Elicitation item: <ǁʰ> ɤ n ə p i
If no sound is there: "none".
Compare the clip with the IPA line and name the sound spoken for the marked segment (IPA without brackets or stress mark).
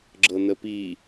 ɡ͡ǁ